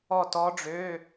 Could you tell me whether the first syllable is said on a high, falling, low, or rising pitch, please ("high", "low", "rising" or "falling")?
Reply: falling